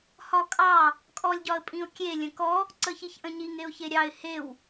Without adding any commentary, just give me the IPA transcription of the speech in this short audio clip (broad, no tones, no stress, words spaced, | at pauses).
hɒkʼɑ | kʼɔlʲɟɒə̯pʼĩʊ̯kʲe lʲə̃kɔ | ǀəçiçʔə̃ɲiŋ eʊ̯çeɾʲɑɪ̯ hew